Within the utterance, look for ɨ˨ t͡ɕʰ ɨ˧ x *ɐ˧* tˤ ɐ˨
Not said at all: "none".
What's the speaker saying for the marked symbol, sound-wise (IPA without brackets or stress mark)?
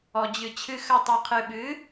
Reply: ɐ˧